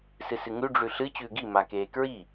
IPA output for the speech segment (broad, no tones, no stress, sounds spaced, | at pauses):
s ɨ s ɨ ŋ ʉ ɖ͡ʐ ʉ ɬ ɨ t͡ɕ ʉː ɡ i m a k eː k ɹ i